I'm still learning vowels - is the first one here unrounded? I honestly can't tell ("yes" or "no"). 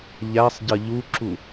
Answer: yes